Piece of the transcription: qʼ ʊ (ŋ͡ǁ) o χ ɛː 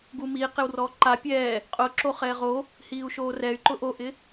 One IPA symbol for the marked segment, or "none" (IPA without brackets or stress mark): ǁ